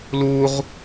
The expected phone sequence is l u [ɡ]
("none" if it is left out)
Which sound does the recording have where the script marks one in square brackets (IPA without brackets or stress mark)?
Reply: ʁ